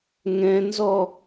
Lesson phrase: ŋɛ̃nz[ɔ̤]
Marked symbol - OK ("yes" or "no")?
no